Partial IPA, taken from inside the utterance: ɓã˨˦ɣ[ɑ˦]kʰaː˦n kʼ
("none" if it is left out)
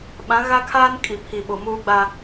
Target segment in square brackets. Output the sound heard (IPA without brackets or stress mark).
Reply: a˦